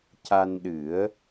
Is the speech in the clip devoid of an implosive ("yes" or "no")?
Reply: no